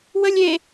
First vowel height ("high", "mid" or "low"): mid